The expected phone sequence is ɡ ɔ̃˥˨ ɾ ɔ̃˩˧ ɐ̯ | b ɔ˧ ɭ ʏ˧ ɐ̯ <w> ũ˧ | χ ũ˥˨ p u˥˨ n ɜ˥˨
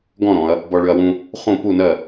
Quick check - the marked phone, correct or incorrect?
correct